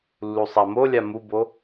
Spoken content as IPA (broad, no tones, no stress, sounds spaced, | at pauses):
lː u sˤ a m o lʲ a m u b o